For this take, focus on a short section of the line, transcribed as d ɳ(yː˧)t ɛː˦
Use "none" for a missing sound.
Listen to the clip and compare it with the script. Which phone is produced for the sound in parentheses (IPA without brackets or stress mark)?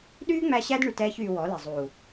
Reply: y˧